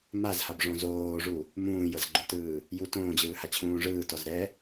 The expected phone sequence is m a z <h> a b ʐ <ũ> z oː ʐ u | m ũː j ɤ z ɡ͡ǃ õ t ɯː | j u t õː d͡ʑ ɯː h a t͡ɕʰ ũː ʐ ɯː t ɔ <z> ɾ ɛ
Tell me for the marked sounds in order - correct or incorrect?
correct, incorrect, correct

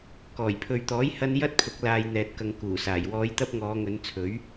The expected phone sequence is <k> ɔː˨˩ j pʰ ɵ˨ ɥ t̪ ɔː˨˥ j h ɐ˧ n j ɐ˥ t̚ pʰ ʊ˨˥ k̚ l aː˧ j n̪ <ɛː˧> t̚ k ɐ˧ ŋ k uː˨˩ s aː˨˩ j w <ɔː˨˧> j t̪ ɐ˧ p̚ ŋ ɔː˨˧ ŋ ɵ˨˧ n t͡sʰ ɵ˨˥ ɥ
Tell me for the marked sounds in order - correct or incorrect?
correct, correct, correct

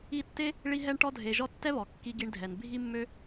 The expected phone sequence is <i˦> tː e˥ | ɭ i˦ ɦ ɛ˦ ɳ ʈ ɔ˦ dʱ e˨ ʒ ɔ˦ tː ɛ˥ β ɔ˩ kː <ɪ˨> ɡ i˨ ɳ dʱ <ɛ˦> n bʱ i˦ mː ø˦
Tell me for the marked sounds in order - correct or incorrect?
correct, incorrect, incorrect

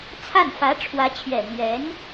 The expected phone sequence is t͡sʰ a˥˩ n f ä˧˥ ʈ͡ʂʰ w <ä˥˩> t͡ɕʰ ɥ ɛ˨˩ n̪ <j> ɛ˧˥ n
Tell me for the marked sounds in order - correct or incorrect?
incorrect, incorrect

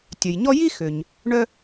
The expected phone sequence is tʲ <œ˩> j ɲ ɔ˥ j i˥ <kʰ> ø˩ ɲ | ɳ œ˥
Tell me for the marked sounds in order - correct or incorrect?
correct, incorrect

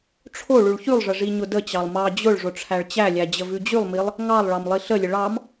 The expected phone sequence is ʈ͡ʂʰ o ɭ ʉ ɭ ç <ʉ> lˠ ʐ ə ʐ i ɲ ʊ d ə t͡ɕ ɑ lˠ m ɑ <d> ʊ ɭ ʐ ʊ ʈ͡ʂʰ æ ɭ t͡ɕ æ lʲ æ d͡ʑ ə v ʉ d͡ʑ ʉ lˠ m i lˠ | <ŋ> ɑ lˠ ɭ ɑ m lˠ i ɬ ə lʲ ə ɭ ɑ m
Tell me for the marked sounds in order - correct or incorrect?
correct, incorrect, correct

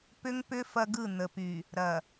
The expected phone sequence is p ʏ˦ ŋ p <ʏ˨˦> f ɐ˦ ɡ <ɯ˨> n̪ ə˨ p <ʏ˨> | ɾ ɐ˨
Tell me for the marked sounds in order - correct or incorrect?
incorrect, incorrect, incorrect

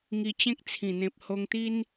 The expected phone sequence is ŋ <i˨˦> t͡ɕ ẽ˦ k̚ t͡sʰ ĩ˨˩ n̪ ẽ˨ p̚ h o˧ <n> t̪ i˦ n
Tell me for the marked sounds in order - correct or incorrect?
incorrect, incorrect

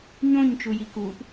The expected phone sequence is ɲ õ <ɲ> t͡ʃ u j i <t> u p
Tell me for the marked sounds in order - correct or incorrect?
correct, incorrect

